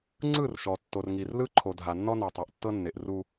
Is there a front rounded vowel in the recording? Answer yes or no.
no